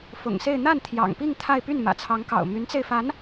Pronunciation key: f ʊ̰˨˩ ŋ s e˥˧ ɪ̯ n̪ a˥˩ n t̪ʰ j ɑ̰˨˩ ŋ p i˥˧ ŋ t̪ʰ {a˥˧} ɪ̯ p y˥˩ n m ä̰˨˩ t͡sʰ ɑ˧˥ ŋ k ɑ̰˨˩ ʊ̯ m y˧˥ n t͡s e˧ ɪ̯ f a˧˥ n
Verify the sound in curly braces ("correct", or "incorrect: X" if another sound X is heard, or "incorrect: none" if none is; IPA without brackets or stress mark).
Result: correct